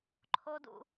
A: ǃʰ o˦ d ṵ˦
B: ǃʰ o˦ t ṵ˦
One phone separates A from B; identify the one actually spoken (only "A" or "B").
A